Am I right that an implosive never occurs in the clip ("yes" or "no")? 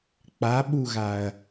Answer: no